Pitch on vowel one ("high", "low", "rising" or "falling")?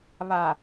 low